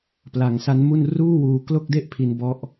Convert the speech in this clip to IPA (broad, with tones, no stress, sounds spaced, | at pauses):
p l a˩˦ ŋ s a˦˥ n m u˥˩ n r uː˥˩ w uː˧ k l o˥˩ k̚ d e˥˩ ʔ pʰ i˧ n b ɔ˦˥ ʔ